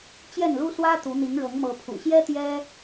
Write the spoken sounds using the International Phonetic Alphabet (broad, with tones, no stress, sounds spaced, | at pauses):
t͡ɕ j ɛ˥˨ n l u˦ s w ä˦ t̪ u˨˦ n̪ i˨˦ ŋ ɻ ɤ˨˦ ŋ m ɤ˨˦ pʰ ṵ˨˩ ɕ j ɛ˦ t̪ j ɛ˦